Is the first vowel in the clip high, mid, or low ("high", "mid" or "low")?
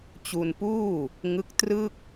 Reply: high